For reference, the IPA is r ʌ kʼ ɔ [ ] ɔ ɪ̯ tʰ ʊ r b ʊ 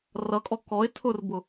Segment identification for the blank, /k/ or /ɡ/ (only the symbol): k